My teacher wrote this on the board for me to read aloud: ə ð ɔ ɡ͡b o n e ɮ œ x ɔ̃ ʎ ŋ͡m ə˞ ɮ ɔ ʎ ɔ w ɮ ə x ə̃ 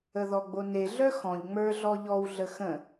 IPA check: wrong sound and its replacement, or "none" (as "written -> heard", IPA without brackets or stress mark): none